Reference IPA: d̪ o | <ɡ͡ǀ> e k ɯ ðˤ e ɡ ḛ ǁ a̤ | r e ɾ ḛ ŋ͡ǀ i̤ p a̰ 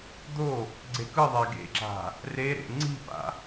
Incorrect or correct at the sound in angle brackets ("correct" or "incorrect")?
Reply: correct